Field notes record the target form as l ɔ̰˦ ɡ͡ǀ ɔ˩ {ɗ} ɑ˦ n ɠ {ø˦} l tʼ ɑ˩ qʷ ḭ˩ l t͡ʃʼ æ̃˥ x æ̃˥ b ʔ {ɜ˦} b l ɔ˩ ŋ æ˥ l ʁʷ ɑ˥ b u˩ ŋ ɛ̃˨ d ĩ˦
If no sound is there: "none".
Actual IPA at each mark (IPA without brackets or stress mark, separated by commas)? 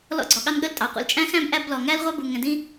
ɠ, ə˦, æ˦